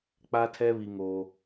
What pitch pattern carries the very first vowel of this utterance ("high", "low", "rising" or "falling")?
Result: high